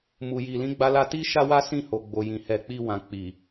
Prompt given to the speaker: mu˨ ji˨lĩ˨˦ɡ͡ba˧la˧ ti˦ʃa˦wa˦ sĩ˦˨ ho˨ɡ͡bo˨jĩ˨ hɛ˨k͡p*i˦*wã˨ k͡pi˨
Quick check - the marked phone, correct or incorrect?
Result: incorrect